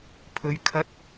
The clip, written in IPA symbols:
pʰɵ˨˧ɥ kʰɐ˨˥t̚

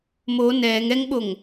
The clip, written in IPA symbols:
mo nɛːŋ ɛŋɓoŋ

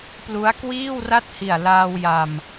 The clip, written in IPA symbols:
plu˦˥a̯ kwiː˥˩wra˥˩t̚hi˨˩a̯ laː˧wja˨˩m

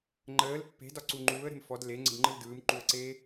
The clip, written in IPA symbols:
ŋ͡ǃəːl pːe̤dɒ ǀuŋ͡ǃuːə̯ɾe̤m fɔd leŋ͡ǀə̤dŋ͡ǃɯl dɯːmǃuə̯ǀeː

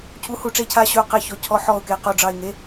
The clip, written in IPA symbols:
cʰu˧˥˧hu˦˨ ʈ͡ʂe˦˨cʰa˦˨ ɕʉ˦˨ʊ̯qe˦˨çɔ˧˥˧ cʰɔ˧˥˧ ħɔ˦˨ʊ̯ke˧˥˧qo˦˨ɖ͡ʐɑ˦˨ɪ̯ ŋe˧˥˧

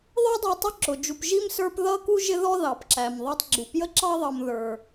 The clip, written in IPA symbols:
ðˤə˞˥dˤu˨tˤʊ˦ ǁʊ˩d͡ʒu˨p ʒi˥msə˞˦p ðʌ˦ku˦ ʒɪ˦ðɔ˦ðɑ˩p ǁæ˩mðˤɑ˦tˤ ɡ͡ǁu˩pjə˥ǁɑ˥ðˤʌ˨m ðə˞˨

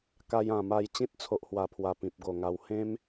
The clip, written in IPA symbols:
ka˧jã˨˩ma˧j t͡ɕĩ˦t̚t͡sʰo˨ʔhwa˨˩pʰwa˨˩ pĩ˨p̚ɡo˨˩ŋa˧w hẽ˦m

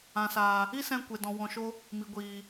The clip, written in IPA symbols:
ã˨saː˨ | i˦sɛ̃˧ kʷe˨dɔ̃˨wɔ̃˨ʃo˧ | mi˨ɡʷiː˨

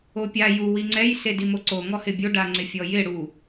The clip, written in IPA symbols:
opʲa ju wiŋ͡ǀɛj sedimoǀo ŋɔhɪbʲo ɖaŋ͡ǀɪfʲɔjɪ ɽu

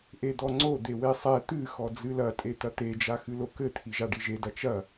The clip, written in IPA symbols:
ʔed̪ɔŋ͡ǀo d̪ewesˤɛ t̪ɨ xɔd͡zɨlɐ tʼet̪ɐt̪e d͡ʒaxɨlokɘ t̪ʰiʒaɖiʒe dɐt͡ʃɐ

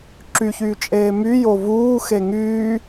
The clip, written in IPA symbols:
ǁyçyː t͡ʃʼeːmy jovuː xeŋyː

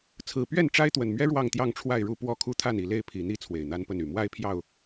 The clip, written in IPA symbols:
t͡sʰɹ̩˨˩pɥɛ˥˨nʈ͡ʂa˦ɪ̯ t̪wə˨˩nmɥɛ˦ ɻwɑ˥˨ŋt̪jɑ˥˨ŋʈ͡ʂʰwa˥˨ɪ̯ɻu˥˨ pwɔ˥˨kʰu˦t̪ʰa˥˨n i˨˩le˥˨ɪ̯pʰi˨˩n̪i˦ t͡sʰwe˨˩ɪ̯n̪a˦npə˥˨ny˨˩ mwa˦ɪ̯pʰjɑ˥˨ʊ̯

